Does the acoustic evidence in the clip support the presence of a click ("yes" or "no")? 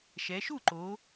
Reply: yes